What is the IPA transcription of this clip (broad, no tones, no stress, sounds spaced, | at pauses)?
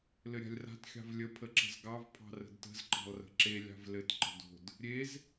l ɘ ɾʲ a̤ lʲ r a̤ t xʲ ɑ̤ v lʲ ə pʰ ə ǁ ə̤ z ɡ ɑ v pʰ ɑ̤ r ə̤ d t ə̤ z ǃ ɑ̤ lˠ r ə̤ ǁ e lʲ ɑ̤ v l ɘ t ǃ ə̤ d o̤ d | ɾʲ e z